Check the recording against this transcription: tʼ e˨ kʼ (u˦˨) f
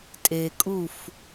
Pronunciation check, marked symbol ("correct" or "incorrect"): correct